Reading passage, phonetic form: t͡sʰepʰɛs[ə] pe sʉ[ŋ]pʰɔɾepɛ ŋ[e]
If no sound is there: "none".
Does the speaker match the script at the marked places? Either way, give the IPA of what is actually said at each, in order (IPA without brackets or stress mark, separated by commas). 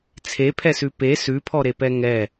ʉ, none, ɛ